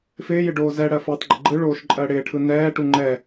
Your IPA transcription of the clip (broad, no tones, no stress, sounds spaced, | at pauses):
f ɪː j ɪ ɖ oː z ɛ ɽ ɜ f oː tˤ ɡ͡ǃ ɪ ɡ͡ǃ ɯ ɭ oː ʃ ǃʼ ɜ ɽ ɪː ʈʰ ɯ n ɛː ʈ u ŋ͡ǃ ɛ